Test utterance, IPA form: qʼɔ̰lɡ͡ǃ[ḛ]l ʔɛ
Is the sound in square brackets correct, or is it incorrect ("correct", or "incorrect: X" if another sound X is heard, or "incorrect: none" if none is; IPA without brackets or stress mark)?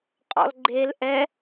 incorrect: e